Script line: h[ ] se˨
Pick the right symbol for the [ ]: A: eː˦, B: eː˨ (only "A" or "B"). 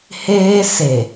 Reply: A